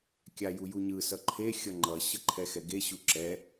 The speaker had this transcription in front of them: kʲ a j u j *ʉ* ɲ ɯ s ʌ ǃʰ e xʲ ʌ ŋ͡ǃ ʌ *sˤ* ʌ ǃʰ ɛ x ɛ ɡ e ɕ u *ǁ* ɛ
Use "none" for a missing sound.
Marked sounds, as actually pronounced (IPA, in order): u, ɕ, ǁ

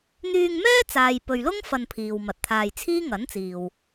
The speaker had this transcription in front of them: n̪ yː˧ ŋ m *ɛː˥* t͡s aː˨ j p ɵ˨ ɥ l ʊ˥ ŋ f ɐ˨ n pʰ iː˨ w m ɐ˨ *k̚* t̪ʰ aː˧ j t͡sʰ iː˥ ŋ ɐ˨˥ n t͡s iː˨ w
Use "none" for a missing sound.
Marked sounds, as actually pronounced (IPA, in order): ɛː˥, t̚

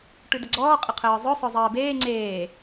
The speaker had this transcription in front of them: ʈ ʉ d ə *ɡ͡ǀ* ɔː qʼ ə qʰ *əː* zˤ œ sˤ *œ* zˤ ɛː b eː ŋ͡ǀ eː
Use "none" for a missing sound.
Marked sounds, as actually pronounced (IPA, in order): ɡ͡ǀ, əː, œ

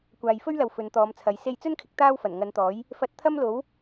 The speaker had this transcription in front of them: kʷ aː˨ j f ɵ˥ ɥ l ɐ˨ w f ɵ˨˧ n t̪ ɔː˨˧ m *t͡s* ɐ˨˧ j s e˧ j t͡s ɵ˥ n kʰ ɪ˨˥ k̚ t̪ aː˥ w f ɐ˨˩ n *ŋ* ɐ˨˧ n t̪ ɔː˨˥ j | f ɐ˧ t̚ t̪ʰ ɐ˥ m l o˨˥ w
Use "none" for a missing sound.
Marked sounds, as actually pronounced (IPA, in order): t͡sʰ, ŋ

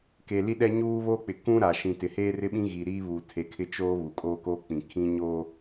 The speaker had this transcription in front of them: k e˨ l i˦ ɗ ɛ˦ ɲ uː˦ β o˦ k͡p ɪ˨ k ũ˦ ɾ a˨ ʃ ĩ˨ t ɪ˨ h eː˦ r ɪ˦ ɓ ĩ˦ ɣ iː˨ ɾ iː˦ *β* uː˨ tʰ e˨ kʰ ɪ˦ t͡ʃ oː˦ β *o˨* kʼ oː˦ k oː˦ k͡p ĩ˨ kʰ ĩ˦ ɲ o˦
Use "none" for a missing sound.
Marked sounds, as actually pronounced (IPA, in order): β, u˨

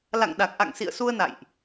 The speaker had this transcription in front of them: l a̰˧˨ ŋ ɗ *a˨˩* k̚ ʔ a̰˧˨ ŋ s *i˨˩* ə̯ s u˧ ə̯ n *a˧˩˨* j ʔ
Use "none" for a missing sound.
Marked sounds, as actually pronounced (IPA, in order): a˨˩, ḭ˧˨, a̰˧˨

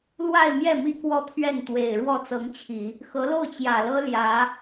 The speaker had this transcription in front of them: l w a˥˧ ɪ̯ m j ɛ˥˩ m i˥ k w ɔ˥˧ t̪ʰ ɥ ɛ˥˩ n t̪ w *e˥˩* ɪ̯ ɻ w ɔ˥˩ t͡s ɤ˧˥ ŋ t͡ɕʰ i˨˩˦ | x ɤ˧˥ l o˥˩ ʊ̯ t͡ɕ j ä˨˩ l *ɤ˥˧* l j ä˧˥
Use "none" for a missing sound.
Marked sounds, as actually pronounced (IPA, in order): e˨˩, ɤ˥

